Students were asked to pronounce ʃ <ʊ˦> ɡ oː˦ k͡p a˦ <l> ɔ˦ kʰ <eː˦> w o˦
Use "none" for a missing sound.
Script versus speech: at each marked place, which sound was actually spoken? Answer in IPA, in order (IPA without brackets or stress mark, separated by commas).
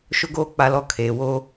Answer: ʊ˦, l, eː˨